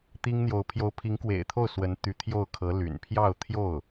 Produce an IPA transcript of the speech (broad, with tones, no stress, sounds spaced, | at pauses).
t̪ i˥ ŋ n̪ j o˧˥ ʊ̯ pʰ j o˧˥ ʊ̯ pʰ i˧˥ ŋ k w ḛ˨˩ ɪ̯ t̪ʰ o˥˩ ʊ̯ s w ə˧˥ n t̪ y˧˥ t̪ʰ j o˥˩ ʊ̯ kʰ ɤ˧˥ l y̰˨˩ n pʰ j ɑ˥˧ ʊ̯ t̪ʰ j o˥˩ ʊ̯